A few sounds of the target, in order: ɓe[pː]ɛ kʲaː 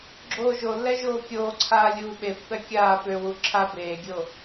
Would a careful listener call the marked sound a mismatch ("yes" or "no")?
no